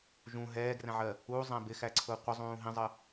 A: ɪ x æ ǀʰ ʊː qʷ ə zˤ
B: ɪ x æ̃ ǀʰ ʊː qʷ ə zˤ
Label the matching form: A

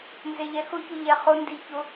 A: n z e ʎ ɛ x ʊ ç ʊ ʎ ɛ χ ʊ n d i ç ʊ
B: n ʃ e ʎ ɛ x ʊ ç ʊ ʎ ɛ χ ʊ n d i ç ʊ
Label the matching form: A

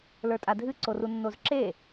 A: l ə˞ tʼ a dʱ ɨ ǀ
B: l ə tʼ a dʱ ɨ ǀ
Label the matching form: A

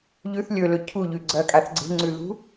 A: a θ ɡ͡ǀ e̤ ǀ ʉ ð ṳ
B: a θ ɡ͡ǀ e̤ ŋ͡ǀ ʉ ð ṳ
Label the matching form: B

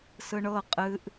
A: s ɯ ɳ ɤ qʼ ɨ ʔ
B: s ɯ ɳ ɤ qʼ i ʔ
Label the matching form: A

